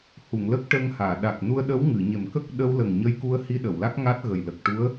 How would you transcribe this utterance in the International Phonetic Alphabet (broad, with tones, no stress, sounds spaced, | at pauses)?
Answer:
h u˨˩˨ ŋ l ə˦˥ k̚ ʈ ə˧ ŋ h aː˨˩˨ ɗ a˨˩ k̚ n u˧ ə̯ ɗ ə˧˥ w ŋ ɨ˨˩˨ ɲ e˨˩ m k ə˦˥ k̚ ɗ ə˧ w l ə˨˩ ŋ ɲ ə˧ j k u˧ ə̯ h i˧ ɗ ə˨˩˨ w l a˦˥ k̚ ŋ a˦˥ t̚ ɣ ə˨˩ j l ə˨˩ k̚ ʈ u˧˥ ə̯